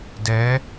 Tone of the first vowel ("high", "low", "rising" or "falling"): rising